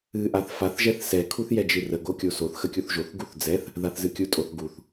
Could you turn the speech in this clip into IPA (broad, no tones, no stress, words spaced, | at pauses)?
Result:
ɨʔaθ faθʒɛθ sɛkʰuθ jɛd͡ʒɨrəɡo kʲosoθxə kʲuθʒoθɡuθ d͡zɛθ | ðaθzɨkʲutʼoθ ɡuθ